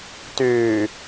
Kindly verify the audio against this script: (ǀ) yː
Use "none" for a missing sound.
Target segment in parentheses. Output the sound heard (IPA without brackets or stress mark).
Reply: t